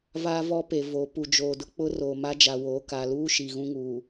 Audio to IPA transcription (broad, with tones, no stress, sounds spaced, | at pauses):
v aː˦ v ɔ˦ p e˨ v o˨˦ p u˨ d͡ʒ oː˨ d ʊ˦ k͡p ʊ˦ r oː˨ m a˦ d͡ʒ a˨ w oː˨˦ k a˨ l uː˦ ʃ i˨ ɣ ũ˦ ŋ uː˨